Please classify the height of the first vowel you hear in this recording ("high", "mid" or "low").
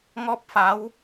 mid